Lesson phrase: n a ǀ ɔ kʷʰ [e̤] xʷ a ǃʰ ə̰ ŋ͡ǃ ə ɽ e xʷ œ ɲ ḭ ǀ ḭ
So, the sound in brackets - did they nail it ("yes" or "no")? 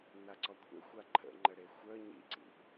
no